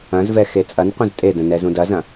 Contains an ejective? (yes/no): yes